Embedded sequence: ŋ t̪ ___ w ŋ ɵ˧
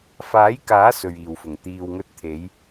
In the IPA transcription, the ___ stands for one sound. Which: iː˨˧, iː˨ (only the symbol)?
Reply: iː˨